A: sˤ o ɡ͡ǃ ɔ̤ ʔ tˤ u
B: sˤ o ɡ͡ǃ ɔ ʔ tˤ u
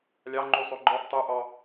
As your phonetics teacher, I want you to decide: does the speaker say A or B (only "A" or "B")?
B